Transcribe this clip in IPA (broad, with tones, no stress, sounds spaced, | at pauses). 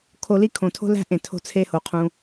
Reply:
kʰ o˧ l i˦ kʰ õ˨ tʰ o̤˦ l æ̤˦ ʔ ẽ˨ tʰ o̤˦ t͡sʰ e˦ h o˨ qʰ ũ˧